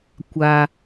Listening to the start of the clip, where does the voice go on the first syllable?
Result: low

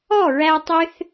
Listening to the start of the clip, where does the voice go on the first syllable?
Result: falling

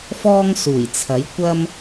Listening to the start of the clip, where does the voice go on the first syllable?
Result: high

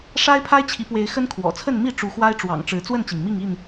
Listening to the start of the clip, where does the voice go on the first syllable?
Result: high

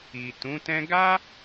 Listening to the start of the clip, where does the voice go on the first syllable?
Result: low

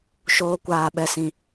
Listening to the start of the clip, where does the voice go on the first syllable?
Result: high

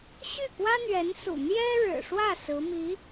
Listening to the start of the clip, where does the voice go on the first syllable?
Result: falling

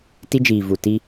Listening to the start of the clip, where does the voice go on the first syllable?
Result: high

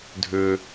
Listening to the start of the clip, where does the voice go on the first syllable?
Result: low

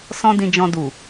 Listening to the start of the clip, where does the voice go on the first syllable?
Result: high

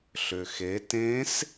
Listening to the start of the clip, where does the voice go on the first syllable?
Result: low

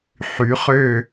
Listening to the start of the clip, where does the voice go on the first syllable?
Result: rising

